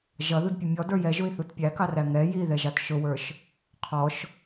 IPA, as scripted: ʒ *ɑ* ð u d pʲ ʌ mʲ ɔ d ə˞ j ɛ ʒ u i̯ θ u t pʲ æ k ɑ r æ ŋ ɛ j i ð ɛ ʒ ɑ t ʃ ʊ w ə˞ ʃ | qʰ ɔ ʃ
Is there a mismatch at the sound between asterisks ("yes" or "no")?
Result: yes